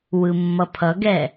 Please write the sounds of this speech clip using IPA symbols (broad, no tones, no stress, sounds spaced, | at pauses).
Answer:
w ɯ mː ʌ pʰ ʌ ɡ ɛ